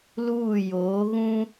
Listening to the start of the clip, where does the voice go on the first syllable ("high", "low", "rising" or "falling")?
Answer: falling